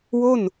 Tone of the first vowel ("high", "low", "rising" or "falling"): falling